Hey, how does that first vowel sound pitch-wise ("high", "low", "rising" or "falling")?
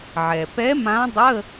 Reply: low